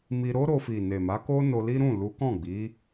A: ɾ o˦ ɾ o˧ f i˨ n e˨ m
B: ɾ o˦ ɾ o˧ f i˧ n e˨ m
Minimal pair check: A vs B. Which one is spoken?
A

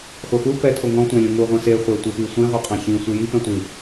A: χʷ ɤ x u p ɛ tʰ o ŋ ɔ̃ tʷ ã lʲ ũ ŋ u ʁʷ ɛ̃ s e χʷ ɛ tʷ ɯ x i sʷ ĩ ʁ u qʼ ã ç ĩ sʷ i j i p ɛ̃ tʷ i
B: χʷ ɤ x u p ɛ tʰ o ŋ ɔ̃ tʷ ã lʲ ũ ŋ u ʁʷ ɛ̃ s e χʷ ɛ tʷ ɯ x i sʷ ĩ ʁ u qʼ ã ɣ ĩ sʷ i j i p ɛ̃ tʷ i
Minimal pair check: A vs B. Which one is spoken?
A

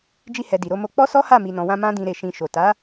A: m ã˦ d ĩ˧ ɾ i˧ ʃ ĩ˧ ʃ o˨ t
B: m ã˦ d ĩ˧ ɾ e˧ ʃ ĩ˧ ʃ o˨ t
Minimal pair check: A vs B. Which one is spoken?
B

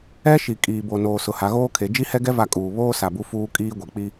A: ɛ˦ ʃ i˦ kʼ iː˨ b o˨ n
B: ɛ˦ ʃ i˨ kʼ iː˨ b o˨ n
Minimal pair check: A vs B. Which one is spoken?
B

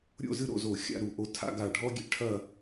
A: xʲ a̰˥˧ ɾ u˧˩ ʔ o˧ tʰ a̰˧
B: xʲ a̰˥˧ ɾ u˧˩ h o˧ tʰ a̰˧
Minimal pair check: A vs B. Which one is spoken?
A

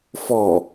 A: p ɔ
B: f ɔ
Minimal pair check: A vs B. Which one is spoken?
B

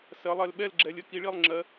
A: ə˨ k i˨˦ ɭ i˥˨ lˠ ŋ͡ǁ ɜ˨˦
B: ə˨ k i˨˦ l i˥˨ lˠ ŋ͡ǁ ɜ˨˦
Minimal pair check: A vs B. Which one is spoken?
A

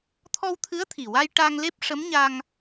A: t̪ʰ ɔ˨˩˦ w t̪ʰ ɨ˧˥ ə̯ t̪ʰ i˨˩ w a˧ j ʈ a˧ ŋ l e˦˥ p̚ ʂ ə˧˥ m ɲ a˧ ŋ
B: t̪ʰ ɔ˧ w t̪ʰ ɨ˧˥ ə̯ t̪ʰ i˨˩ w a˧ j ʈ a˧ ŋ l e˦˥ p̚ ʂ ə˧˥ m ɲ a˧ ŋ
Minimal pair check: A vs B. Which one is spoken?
B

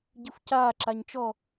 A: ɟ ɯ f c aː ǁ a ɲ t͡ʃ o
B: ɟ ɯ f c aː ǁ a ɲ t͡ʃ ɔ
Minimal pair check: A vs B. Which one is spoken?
B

